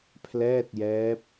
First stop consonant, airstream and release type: aspirated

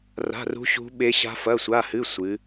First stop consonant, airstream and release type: implosive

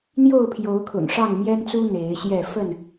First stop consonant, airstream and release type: aspirated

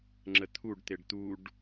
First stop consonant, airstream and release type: click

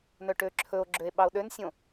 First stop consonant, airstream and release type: plain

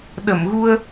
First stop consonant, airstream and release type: implosive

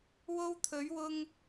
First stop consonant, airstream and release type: aspirated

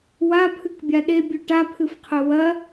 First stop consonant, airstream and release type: aspirated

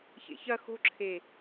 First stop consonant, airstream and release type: click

